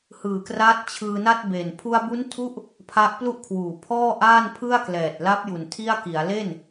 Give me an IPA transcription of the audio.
hɯː˨˩kraː˦˥t̚ t͡ɕʰɯː˧na˥˩t̚be˨˩n pʰu˧a̯bu˦˥ntʰu˦˥ʔ | pʰa˦˥ʔplu˥˩ʔkʰwuː˨˩ pʰɔː˥˩ʔaː˥˩n pʰɯ˥˩a̯klɛː˨˩t̚la˦˥p̚ju˨˩n tʰi˥˩a̯ki˩˦a̯ le˥˩n

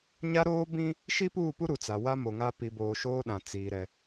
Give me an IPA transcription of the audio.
ɲa˦ ɾoː˦bĩ˦ | ʃi˦puː˦˨pu˦ ɾu˨t͡sa˨wa˦ mo˨ŋa˦ pi˨boː˨ ʃoː˦ɗã˨ t͡siː˨ɾɛ˨

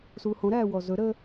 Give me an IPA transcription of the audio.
suːhõɾæː wɔzɵɾəː

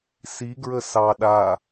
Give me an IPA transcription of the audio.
siɡɹə sɑ ɗa

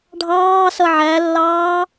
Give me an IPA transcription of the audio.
ɖʱɑːsʌ ʕælːɑː

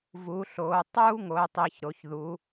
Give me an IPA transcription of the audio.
vu˩˧ɬo˩˧ tˤu˦ ŋo˩˧ɪ̯tˤi˩˧çɾo˩˧çðu˩˧

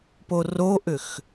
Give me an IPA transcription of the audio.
poroʔʏx

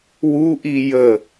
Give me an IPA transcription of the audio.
wuʔi jə

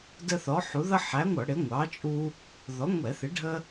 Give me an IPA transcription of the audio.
də˦θɔ˨˥ħu˨˥ ðʌ˦ħæ˨˥ŋʷʌ˧˩˧ ɽɪ˨˥ŋʷɑ˨˥t͡ʃʼu˦ | ðɔ˨˥ŋʷɛ˧˩˧θɪ˨˥ɖʱə˦

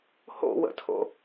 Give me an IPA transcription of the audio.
ho̰wə̰tʰo̰

